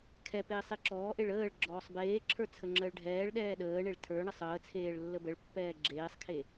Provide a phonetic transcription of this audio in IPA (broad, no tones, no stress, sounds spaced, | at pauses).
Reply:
kʰ ɛ p eː sˤ e ǁ ɔː ʔ e ɭ əː ɭ ɡ͡ǁ ɔː sˤ b eː ǁʰ ə˞ t͡sʰ ə ŋ͡ǁ əː ɭ ɖʱ ɛː ɭ ɗ ɛː ɗ əː ɳ e ɭ tʰ ə˞ ɳ ə sˤ əː t͡sʰ eː ɭ lː ə b ə ɭ pː ɛː ɡ͡ǁ eː sˤ kʰ e